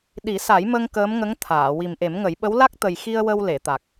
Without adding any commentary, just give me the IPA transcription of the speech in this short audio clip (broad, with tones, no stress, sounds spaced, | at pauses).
ɗ i˨˩˦ s a˨˩˦ j m ə˧ ŋ k əː˧˥ m ŋ ə˧˥ ŋ t̪ʰ aː˨˩˨ w i˨˩ m ʔ e˨˩˦ m ŋ ə˨˩˦ j ɓ ə˧˥ w l a˦˥ k̚ t̪ ə˨˩ j x i˧ ə̯ w ə˧ w l e˨˩˨ t̪ a˨˩ k̚